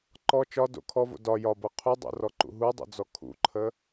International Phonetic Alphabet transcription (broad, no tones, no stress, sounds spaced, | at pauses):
ǃ ɔ t͡ʃ ɒ d o̰ kʰ ɔ v o̰ d ɒ j ɒ b ɤ qʰ u dˤ o̰ r ɔ ǃ ṵ ɦ u dˤ o̰ d͡z ɔ kʰ ṵ ǃʰ ə